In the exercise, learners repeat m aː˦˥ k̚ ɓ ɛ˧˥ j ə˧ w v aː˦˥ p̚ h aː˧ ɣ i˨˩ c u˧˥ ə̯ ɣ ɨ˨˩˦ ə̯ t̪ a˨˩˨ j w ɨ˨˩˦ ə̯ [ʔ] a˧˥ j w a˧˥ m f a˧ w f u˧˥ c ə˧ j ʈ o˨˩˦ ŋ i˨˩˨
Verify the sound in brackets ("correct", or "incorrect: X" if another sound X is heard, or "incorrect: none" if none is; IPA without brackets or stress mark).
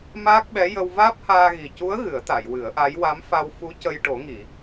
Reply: correct